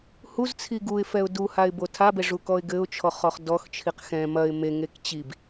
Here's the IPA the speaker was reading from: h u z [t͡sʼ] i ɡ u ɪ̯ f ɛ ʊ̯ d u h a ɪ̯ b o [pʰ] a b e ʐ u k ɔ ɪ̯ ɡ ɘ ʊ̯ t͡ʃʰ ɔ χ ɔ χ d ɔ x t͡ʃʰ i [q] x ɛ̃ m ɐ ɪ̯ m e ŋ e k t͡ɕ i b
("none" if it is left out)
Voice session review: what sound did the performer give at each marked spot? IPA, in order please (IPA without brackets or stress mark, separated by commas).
t͡sʰ, tʰ, q